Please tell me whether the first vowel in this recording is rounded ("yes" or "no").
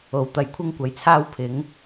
yes